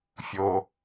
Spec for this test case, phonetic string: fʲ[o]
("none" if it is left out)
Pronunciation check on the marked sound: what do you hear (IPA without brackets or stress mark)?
o